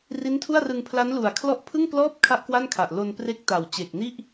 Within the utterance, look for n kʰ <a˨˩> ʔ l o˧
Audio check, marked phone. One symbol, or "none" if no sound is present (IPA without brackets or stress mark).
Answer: a˨˩